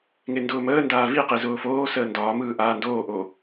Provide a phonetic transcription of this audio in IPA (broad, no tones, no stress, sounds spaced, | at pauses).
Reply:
ŋ e n d ʊː m əː n d aː v i q i z ʊː f oː s əː n d ɒː m ɯː ʔ aː n d oː ʔ oː